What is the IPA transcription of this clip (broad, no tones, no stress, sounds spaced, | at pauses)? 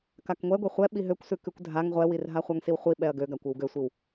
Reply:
k a k ŋʷ ɛ ɡʷ ɛ χʷ ɛ ɓ i ɦ ø kʷ s ʉ k ʉ kʷ dʱ a ŋ ʁʷ ɛ w i r ɦ a χʷ a ŋ s i w χʷ i ɓ ɛ ɐ̯ ɡ ø ɡ a kʷ ʉ w ɡ ø sʷ i w